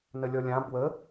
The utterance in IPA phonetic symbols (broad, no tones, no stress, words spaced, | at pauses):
nəlʲɔlʲã bwə